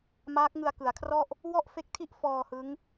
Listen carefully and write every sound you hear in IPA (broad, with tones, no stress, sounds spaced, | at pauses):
m aː˦˥ k̚ ŋ ɯ˧ a̯ k ɯ˩˦ a̯ kʰ r ɔ˥˩ ʔ | w ɔ˥˩ ʔ f e˦˥ k̚ tʰ i˥˩ ʔ f ɔː˧ h ɯ˦˥ ŋ